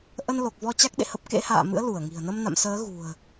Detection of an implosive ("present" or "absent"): present